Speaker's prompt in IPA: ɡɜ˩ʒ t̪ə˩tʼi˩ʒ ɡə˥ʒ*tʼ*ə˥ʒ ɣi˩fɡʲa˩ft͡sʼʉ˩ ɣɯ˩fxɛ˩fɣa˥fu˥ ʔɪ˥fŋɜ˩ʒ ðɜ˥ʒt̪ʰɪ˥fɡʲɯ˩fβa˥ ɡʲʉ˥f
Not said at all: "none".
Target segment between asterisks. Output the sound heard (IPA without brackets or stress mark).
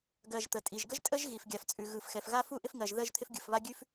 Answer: tʼ